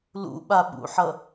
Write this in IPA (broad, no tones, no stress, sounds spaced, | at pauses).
l ṵ ɓ a ɓ ṵ ħ ʌ